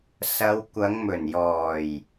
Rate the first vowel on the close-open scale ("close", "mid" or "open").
open